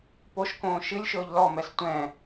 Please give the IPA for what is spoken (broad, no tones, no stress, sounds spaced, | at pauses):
p o ʃ k õː ʃ ɨ lʲ ʃ ɵː ʎ l ɔ m ɛ s tʷ ɛ̃ː